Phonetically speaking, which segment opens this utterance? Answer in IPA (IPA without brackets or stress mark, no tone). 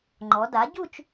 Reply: ŋ͡ǃ